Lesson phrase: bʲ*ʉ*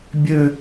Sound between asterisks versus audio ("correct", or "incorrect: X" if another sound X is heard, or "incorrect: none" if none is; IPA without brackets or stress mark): incorrect: ø